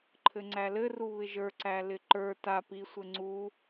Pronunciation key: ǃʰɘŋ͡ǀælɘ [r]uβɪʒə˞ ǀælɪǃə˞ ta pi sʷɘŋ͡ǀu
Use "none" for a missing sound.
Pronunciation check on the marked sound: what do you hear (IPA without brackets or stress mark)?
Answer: r